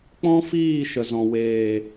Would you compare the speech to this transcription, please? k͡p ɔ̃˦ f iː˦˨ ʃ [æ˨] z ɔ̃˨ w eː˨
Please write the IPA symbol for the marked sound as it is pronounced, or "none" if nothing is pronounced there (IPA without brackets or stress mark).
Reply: ə˨